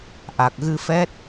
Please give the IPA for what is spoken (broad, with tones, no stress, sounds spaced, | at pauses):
ʔ a˨˩ k̚ ɣ ɨ˧ f ɛ˦˥ t̚